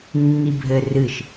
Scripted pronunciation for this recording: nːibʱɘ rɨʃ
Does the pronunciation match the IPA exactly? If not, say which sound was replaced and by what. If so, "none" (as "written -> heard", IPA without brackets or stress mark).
none